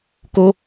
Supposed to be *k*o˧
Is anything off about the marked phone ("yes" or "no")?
no